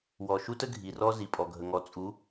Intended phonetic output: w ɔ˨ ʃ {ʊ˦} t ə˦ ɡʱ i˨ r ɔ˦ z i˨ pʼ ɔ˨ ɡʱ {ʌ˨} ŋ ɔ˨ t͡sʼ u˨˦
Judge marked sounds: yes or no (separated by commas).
no, no